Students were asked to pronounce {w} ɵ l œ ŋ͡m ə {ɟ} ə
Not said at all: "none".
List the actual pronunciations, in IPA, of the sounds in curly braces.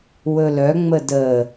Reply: w, d

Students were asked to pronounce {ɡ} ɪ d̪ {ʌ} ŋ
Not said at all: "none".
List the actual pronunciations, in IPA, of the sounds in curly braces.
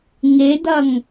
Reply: ŋ, ʌ

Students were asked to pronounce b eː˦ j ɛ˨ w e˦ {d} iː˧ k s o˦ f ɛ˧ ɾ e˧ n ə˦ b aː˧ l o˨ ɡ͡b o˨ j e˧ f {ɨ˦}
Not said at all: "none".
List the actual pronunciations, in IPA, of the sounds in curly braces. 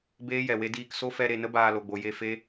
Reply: d, e˦

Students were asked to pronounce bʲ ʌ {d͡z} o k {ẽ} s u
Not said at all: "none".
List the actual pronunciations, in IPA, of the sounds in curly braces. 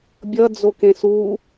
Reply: d͡z, ẽ

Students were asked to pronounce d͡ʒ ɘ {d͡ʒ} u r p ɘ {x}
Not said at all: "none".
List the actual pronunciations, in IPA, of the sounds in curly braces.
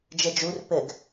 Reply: d͡ʒ, ɡ

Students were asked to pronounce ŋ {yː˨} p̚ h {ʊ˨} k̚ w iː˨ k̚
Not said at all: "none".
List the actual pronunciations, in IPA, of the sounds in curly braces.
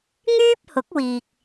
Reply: yː˥, ʊ˨˥

